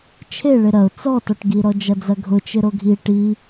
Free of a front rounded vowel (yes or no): yes